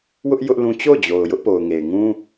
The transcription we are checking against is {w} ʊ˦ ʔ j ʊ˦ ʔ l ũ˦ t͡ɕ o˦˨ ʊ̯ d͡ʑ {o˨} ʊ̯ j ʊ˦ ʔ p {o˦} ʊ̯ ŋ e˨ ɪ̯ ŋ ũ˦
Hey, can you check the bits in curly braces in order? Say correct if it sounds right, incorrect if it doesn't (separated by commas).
correct, correct, incorrect